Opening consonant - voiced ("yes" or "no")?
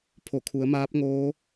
no